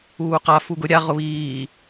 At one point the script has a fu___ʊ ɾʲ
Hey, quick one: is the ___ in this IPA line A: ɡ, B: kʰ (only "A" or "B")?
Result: A